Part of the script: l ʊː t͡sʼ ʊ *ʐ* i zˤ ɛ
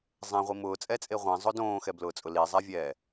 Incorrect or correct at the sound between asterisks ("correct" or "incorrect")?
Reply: incorrect